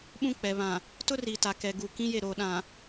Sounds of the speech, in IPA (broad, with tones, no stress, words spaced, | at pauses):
ɓũ˦k͡pɛ˨ βã˨ | tʊ˦ ri˨ta˨ kɛ˨ɡu˨ kĩ˦je˦˨ ɾoː˨ɗã˨